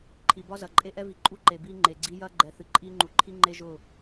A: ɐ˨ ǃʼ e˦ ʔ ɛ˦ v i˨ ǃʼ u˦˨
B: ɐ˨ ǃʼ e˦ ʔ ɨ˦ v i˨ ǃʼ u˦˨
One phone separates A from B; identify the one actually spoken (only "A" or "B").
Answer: A